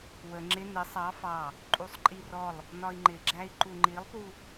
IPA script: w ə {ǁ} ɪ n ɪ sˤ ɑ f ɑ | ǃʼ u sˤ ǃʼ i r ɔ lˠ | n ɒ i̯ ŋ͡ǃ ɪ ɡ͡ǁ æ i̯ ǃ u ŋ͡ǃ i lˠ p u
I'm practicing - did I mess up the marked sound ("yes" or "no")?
yes